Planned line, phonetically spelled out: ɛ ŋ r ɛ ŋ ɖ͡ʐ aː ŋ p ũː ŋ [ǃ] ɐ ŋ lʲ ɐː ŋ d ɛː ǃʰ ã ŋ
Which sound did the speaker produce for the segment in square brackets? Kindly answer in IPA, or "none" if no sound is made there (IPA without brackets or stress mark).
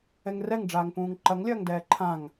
ǃ